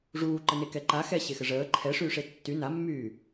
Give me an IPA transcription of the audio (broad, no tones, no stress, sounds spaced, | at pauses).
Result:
ʐ uː ǃ ə n e k ɛ ǃ a x ɛ ɕ e x ə ʐ əː ǃʰ ɛ ʂ yː ʂ e tː y n a mː yː